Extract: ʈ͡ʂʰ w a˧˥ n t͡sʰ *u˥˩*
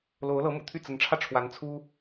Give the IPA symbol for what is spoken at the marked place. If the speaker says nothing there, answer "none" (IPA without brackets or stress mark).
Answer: u˥